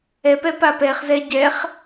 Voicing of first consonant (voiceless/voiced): voiceless